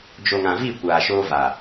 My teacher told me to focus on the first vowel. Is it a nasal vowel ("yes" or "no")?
no